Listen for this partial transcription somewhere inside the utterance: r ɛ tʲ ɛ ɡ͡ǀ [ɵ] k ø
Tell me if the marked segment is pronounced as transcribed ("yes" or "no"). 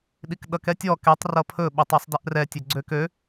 no